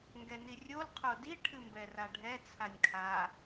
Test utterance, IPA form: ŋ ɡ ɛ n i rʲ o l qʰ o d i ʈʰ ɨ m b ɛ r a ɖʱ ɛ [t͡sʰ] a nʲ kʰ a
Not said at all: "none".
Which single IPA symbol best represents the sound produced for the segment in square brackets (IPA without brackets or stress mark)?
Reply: t͡sʰ